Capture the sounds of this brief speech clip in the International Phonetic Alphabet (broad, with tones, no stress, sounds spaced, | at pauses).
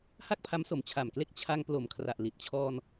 h a˥˩ k̚ pʰ a˦˥ m s o˨˩ m t͡ɕʰ a˨˩ m k l e˥˩ k̚ t͡ɕʰ a˧ ŋ p l o˨˩ m kʰ r a˨˩ ʔ l i˨˩ t̚ t͡ɕʰ ɔː˧ n